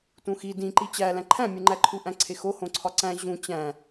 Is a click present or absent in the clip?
present